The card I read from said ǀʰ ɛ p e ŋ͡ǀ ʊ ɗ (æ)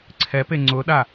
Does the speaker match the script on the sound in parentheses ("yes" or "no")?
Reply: no